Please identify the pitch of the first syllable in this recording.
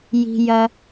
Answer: high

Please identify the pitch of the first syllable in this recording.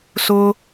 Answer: high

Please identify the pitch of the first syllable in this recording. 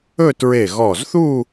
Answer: falling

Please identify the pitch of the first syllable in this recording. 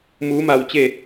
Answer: rising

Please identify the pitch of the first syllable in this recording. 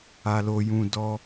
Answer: low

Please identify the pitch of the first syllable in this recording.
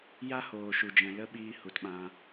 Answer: high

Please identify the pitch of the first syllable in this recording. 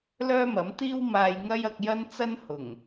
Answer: high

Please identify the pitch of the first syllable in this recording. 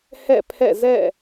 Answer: falling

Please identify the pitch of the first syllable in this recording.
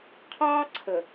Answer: high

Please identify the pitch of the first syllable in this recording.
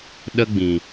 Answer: high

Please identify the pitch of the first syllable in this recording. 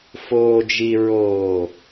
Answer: low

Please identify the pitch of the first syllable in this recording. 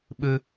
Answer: high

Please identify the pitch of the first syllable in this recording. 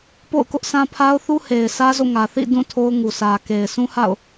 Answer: falling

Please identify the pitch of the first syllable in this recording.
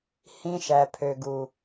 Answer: high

